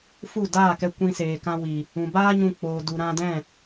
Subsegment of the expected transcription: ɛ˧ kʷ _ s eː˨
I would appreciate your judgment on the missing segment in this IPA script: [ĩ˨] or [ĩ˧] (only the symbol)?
ĩ˧